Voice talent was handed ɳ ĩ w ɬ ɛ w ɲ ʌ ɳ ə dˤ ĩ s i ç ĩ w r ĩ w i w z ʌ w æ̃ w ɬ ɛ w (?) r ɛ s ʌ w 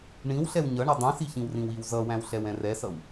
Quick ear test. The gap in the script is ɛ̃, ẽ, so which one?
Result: ɛ̃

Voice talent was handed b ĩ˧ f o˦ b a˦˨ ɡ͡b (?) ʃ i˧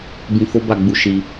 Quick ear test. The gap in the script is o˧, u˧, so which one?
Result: u˧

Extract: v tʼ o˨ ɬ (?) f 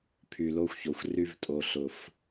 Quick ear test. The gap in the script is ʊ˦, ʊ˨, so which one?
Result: ʊ˨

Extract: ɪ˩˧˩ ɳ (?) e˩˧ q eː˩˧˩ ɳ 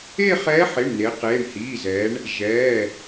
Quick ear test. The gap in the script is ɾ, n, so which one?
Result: n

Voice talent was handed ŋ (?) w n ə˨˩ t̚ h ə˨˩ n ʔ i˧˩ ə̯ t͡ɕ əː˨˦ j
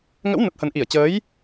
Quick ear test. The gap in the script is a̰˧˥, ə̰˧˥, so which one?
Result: ə̰˧˥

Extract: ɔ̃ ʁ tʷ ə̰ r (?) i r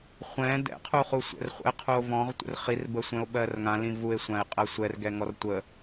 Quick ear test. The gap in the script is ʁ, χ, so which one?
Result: χ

